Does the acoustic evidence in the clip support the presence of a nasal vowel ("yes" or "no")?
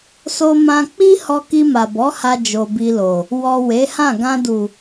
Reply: yes